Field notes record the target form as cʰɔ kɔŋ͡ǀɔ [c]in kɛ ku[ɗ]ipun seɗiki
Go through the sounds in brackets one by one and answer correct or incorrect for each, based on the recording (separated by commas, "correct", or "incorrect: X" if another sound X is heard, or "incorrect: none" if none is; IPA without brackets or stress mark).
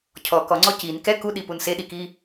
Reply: correct, correct